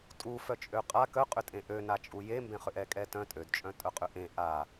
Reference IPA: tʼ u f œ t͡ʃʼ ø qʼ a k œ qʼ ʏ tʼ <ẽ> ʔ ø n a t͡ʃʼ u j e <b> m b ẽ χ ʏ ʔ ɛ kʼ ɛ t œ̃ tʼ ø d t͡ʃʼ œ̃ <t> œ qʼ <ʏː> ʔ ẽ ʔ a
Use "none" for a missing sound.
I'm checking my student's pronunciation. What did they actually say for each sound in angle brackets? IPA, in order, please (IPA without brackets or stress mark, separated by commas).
ẽ, none, tʼ, ʏ